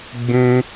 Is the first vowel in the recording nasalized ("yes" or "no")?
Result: yes